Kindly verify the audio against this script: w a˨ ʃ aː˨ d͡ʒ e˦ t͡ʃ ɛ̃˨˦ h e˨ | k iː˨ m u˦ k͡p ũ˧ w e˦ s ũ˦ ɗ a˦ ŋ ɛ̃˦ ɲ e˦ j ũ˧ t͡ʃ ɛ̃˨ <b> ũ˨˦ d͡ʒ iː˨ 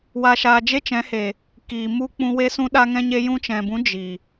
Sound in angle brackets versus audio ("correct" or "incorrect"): correct